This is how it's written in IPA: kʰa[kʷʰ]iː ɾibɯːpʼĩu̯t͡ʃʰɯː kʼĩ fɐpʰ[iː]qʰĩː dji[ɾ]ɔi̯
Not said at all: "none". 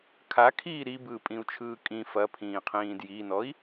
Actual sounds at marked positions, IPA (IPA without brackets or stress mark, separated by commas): kʰ, ĩː, n